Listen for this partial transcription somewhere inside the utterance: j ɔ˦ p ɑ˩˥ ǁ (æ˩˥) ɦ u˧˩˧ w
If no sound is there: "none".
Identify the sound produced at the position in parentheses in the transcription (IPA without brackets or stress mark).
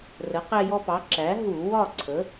æ˩˥